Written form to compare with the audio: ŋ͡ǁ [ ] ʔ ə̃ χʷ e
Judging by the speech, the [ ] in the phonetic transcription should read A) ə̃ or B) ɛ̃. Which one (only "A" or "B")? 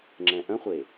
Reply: B